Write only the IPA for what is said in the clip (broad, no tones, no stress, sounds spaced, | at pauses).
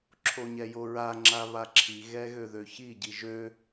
ǁʰ o ɲ ɛ j o ɹ a ŋ͡ǁ a β a ǁʰ i ɣ ɛ ɣ ø ð ø ç i ɟ i ʒ ø